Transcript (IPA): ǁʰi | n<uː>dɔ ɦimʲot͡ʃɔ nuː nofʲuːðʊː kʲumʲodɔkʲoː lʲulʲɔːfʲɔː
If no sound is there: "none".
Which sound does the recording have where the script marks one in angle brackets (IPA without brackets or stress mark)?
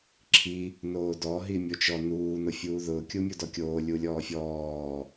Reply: oː